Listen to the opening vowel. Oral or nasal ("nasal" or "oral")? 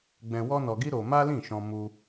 nasal